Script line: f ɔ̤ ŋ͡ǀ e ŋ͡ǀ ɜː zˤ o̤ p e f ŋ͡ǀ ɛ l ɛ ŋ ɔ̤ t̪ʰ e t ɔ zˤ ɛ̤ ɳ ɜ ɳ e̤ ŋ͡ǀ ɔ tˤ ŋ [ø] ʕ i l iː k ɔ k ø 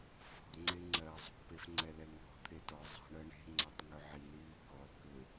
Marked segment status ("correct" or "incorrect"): correct